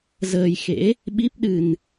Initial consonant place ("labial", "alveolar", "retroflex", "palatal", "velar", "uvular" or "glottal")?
alveolar